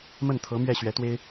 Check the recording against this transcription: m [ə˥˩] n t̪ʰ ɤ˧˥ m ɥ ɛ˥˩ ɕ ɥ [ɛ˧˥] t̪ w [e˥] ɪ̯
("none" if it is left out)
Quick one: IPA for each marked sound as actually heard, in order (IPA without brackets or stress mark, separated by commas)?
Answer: ə˥˩, ɛ˧˥, e˥